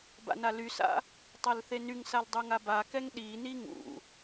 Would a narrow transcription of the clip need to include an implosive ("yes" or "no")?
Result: yes